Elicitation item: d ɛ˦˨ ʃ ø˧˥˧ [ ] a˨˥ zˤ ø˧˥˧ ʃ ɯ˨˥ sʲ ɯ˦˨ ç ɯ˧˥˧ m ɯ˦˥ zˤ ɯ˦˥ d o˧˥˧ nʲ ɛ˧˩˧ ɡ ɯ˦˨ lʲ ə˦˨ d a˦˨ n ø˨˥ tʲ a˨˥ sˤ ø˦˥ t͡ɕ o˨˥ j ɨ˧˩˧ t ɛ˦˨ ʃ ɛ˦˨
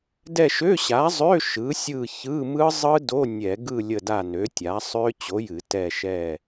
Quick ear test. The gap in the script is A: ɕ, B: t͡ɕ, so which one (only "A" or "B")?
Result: A